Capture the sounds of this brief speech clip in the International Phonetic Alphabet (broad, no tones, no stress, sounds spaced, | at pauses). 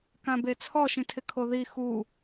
k ã b e t͡sʰ ɔ ʃ ĩ tʰ ɪ kʰ o ð i x u